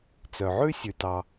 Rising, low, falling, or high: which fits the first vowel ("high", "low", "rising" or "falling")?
low